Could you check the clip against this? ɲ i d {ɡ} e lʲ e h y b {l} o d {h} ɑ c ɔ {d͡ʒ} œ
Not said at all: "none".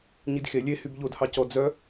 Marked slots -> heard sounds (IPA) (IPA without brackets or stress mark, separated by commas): x, ʎ, h, d͡z